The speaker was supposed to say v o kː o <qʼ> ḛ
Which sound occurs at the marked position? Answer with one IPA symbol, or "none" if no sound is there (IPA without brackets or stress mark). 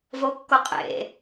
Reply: qʼ